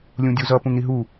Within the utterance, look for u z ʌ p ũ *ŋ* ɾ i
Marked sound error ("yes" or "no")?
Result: no